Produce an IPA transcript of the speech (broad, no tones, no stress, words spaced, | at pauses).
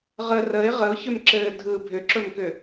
ʁə rəɪ̯ ʁəʊ̯çʏmǁɘː dʱɯ bʱʏǁɵmkʏ